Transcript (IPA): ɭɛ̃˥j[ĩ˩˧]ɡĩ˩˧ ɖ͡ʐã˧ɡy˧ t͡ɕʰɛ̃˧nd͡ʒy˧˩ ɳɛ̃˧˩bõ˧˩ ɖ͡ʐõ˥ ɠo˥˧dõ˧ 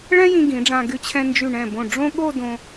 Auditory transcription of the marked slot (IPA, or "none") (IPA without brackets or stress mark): ĩ˧